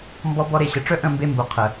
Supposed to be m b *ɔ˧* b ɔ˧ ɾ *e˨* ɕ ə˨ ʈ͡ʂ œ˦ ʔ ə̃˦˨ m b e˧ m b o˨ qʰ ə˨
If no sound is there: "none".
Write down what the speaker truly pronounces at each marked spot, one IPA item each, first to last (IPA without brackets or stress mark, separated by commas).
ɔ˧, e˨